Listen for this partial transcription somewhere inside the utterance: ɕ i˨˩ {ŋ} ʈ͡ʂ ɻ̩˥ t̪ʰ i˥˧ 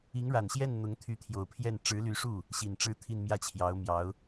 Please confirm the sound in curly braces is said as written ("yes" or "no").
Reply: no